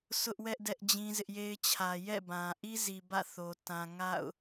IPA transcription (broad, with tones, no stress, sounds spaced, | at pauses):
sʰ ʊ˦ ʔ w ɛ˦ ʔ d ɛ˦ ʔ d͡ʑ ĩ˦ z ɪ˦ ʔ j e˦ ɪ̯ t͡ɕʰ ä˨ j ɛ̰˦˨ b ã˨ ʔ i˦ z i˨ b ä̰˦˨ θ o˨ t ã˨ ŋ a̰˦˨ ʊ̯